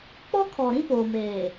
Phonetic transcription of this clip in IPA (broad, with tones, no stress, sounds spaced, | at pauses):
k͡p ɔ˦ kʰ ɔ˨ ɾ ĩ˦ p oː˨ m eː˨